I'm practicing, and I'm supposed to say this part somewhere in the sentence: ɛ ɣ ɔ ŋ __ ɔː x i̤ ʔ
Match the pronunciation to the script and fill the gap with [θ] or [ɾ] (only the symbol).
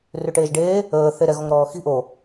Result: ɾ